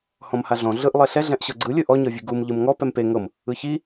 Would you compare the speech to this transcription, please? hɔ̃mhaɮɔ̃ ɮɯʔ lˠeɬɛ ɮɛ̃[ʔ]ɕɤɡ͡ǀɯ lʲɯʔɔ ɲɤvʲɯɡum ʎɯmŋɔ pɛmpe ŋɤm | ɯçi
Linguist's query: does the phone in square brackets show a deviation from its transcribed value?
no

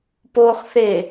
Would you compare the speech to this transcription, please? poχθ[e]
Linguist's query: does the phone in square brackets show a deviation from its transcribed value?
no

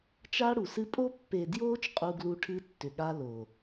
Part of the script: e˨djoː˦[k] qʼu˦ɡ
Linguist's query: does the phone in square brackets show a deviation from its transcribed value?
yes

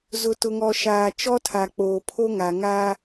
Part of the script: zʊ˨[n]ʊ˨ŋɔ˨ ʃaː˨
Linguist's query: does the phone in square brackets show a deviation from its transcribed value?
yes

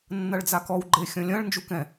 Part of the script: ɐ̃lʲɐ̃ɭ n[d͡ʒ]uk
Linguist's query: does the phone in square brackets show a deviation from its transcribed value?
no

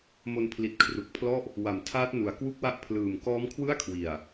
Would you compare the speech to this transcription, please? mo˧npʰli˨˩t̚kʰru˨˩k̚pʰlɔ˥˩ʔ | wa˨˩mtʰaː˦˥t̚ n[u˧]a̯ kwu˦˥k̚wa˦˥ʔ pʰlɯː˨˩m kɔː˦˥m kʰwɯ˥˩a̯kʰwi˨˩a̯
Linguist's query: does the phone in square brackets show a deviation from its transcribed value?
yes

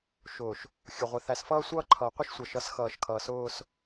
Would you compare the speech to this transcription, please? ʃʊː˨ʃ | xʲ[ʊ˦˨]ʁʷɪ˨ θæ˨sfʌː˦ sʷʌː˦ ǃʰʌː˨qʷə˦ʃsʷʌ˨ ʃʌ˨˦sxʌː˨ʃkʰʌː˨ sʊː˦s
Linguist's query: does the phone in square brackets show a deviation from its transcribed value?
yes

